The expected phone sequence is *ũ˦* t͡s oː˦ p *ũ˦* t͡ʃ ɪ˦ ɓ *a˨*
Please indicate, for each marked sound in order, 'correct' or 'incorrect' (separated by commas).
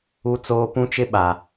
incorrect, correct, correct